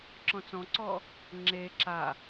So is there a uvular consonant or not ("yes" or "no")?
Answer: no